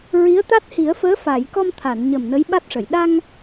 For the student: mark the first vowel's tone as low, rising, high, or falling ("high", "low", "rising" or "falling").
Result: rising